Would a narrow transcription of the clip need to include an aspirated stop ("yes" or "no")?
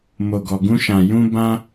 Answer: no